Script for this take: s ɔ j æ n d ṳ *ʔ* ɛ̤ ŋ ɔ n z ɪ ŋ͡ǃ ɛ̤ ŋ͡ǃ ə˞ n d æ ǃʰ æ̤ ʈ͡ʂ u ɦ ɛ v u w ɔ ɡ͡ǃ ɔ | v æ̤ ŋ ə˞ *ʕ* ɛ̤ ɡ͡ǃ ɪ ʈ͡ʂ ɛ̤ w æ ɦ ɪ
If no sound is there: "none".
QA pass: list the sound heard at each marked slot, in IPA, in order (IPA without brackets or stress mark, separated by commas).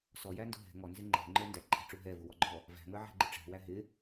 ɦ, ʕ